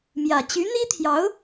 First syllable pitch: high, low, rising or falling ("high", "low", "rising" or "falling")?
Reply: low